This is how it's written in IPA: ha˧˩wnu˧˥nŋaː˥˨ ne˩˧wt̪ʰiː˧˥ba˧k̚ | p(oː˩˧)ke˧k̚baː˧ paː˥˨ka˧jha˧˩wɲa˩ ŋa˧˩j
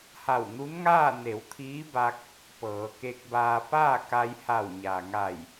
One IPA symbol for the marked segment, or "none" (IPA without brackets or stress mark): ɤː˩˧